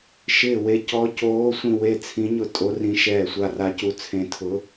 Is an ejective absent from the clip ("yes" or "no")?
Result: no